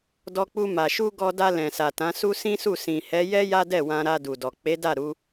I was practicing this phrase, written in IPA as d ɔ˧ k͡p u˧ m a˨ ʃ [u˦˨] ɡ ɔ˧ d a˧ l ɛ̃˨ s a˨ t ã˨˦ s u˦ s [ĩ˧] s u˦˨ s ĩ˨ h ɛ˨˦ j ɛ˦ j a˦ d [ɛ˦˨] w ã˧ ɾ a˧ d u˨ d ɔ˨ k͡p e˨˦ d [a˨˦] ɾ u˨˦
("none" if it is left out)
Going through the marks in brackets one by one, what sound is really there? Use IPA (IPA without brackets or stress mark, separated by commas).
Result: u˧, ĩ˦, ɛ˦˨, a˦˨